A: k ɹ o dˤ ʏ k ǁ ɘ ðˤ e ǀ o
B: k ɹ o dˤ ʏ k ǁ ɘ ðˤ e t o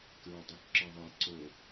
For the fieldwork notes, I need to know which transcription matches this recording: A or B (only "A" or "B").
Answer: A